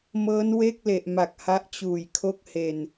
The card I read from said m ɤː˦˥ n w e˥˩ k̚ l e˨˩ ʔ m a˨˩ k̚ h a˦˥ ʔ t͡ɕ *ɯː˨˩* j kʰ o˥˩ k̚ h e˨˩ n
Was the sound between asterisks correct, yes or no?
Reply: no